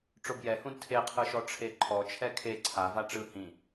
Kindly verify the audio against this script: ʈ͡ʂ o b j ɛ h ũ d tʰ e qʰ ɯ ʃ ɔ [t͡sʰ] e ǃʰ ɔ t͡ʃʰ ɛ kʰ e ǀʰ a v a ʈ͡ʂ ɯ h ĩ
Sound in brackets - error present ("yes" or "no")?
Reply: yes